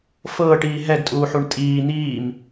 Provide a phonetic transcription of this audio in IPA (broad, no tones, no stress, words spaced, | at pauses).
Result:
fɤːʈiː ɦɛɡtʼuːħuɳ tʼiː n̪iːm